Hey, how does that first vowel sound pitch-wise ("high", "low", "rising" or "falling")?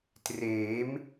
rising